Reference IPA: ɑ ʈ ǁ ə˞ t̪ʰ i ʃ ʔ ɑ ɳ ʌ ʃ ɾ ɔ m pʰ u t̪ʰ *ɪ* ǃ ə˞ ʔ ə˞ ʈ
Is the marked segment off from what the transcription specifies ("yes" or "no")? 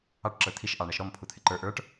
no